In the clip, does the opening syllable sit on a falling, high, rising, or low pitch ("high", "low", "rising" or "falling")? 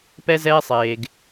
high